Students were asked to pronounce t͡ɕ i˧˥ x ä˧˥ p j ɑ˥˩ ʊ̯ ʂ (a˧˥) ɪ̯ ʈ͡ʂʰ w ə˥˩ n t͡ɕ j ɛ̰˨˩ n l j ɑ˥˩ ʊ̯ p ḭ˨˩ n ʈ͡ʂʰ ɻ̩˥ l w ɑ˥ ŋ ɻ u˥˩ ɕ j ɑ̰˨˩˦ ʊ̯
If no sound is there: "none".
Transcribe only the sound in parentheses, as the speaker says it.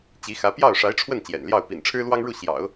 a˧˥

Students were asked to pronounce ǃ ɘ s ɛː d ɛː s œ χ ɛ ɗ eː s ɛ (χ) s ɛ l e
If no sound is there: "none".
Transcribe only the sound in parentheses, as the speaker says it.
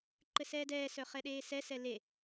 none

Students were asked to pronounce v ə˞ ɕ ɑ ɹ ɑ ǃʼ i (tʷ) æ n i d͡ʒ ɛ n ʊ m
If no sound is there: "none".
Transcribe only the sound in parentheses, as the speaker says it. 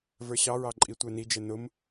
tʷ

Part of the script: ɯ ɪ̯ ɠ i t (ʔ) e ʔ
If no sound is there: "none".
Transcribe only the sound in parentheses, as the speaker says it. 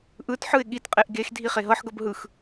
qʼ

